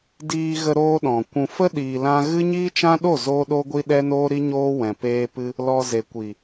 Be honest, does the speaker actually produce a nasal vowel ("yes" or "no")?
yes